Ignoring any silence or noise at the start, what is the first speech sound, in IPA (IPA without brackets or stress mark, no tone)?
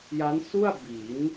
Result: j